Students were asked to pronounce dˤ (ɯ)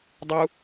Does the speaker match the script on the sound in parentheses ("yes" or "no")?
no